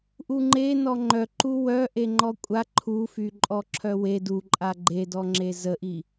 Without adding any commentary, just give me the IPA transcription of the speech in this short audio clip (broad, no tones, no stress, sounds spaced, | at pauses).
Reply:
ʔ u ŋ͡ǃ e n ɔ ŋ͡ǃ œ ǃ u w œ ʔ e ŋ͡ǃ ɔ kʷʼ a ǃʰ u f y ǃʼ ɔ ǁʰ œ w e d u ǃʼ a ɡ͡ǃ e d ɔ ŋ͡ǁ e z ə ʔ i